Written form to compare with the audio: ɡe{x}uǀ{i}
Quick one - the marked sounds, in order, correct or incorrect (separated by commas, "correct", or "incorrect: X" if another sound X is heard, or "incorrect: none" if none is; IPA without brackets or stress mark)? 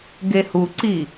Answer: incorrect: h, correct